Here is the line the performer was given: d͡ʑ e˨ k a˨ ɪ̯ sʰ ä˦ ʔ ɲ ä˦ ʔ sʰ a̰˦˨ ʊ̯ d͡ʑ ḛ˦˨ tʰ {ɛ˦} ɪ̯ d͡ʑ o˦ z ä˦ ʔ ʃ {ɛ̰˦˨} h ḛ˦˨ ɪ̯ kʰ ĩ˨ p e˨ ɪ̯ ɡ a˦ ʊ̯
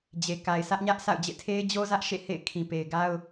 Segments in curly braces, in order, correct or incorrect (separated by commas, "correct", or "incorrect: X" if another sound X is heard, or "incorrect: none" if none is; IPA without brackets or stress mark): incorrect: e˦, incorrect: ḛ˦˨